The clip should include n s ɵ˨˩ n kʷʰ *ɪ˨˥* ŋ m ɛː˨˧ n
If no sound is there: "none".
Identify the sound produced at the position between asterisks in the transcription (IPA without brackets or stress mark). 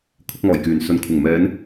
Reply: ɪ˨˩